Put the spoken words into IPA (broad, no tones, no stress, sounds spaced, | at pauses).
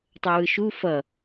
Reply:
tˤ o w ɯ ʃ u f ʌ